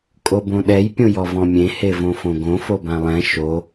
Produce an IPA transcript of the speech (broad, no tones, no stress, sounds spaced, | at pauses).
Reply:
kʼ o b õ ɗ ɛ j pʲ õ j ɔ v ɔ̃ mʲ ẽ h e v õ f õ ɡ õ f o b ã lˠ ɛ̃ ʃ o